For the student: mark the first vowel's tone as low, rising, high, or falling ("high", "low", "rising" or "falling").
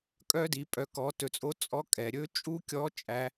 high